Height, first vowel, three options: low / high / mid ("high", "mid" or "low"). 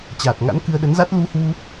low